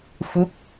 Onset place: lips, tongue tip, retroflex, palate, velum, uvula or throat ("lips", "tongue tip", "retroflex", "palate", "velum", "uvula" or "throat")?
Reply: lips